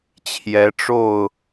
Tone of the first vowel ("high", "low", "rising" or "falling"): rising